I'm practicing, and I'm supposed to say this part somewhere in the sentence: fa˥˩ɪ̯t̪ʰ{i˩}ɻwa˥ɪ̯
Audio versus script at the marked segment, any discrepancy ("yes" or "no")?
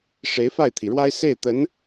no